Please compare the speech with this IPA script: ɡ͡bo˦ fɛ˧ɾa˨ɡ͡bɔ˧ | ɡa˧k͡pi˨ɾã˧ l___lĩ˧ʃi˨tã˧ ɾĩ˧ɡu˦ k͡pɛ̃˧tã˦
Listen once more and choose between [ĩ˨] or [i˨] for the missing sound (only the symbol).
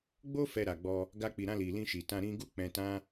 i˨